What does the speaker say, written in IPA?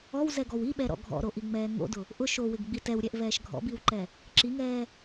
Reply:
ɔwzɛɡɔw iɓɛɾɔ̰ ɡʱɔ̰ɾoʔiŋ͡mɛː ŋo̰dʊ | ʔʊ ʃowɪɡɡ͡bi tɛwɾʲɛʔvɛːʃ ɡʱɔ̰biwǃɛ | ǁiŋɛː

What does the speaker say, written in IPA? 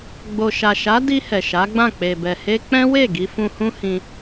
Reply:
ɡ͡bo˨ʃa˨ʃa˨˦ di˧ hɛ˨ʃa˨˦ɡ͡bã˦˨ k͡pe˨bɛ˨he˧ k͡pɛ̃˦we˦˨ ɡi˧fũ˧ hũ˦hĩ˧

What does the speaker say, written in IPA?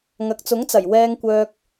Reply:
ŋɐ˨k̚t͡sʊ˨˥ŋt͡sɐ˨˩j wɛː˧ŋkʷœː˧k̚

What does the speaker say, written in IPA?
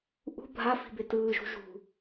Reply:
ʔṳ bʱafi̤be tɯːʒṳ ʒṳ

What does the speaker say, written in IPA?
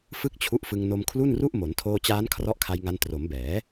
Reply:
fɯ˥˩k̚t͡ɕʰu˦˥ʔfɯ˧ŋ no˧mkʰlu˥˩nru˥˩ʔmo˩˦n tʰoː˧t͡ɕaː˦˥n kʰrɔ˦˥ʔkʰa˧jŋa˧n tro˩˦mbɛː˩˦

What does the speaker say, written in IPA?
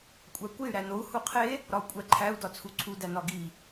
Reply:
kʷʼækʷey̯ ɾænou̯ huqʰe | ɾɒu̯kʷʼæǃʰæu̯ dɒt͡sʰuǀʰu dænɒɡi

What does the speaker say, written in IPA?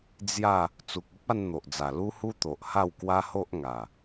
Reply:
d͡zja˥˧ | t͡su˨k̚u˦p̚a˧n n̪o˨ʔd͡za˨˩ lu˦hu˦t̪o˨ʔ ha˥˧wkwa˦ho˦ʔ ŋa˨˩

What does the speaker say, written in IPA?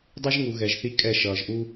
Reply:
dˤɯ˦ʒŋu˨ ɣɛ˨ʒθi˦ kʼɛ˦˨ʃʌː˨ʒ ʔu˦

